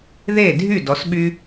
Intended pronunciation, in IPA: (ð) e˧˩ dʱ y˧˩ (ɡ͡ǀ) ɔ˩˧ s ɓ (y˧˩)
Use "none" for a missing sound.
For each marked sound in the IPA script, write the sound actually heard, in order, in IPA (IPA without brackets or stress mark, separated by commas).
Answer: ð, d, y˧